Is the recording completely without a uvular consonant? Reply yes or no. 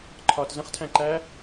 no